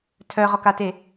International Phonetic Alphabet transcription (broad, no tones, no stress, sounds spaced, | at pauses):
tʰ œ ʁ ɔ k a t e